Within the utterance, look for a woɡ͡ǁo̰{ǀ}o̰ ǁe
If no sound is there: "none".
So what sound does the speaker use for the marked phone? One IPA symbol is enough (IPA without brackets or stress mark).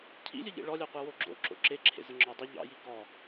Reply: ǁ